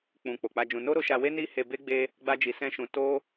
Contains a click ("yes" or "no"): no